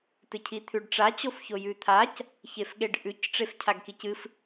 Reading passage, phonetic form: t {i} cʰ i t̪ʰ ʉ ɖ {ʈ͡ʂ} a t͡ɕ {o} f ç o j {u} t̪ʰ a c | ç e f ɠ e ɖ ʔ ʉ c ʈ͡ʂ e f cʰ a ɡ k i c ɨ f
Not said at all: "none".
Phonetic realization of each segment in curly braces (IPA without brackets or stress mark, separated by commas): ɨ, ʈ͡ʂ, o, ʉ